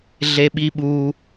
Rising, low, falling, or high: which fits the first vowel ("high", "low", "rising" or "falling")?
high